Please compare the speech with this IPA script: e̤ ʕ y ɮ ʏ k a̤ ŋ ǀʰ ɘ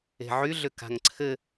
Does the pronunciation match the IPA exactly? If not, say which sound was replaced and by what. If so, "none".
none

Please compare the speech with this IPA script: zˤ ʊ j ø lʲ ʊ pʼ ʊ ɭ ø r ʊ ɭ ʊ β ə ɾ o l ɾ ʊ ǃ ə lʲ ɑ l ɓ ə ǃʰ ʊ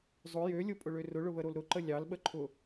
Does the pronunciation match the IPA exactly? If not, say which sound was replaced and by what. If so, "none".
none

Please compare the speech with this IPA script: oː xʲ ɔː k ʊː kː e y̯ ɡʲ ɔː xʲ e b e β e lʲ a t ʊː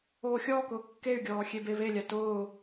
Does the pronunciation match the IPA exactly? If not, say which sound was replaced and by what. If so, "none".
none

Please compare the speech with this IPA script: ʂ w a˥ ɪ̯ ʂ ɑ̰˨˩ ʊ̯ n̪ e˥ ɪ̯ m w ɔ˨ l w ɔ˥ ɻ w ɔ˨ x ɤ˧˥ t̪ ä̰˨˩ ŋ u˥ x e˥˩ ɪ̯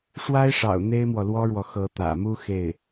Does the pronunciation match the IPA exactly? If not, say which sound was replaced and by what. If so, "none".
ŋ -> m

